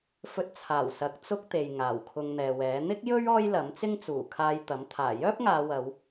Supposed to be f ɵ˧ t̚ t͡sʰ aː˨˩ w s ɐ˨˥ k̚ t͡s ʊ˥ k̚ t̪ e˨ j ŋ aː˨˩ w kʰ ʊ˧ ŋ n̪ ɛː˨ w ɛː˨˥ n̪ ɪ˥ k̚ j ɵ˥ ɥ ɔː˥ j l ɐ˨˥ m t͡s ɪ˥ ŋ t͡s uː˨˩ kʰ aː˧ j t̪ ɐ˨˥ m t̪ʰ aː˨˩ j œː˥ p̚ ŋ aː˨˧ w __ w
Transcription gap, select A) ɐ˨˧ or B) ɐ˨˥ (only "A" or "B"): A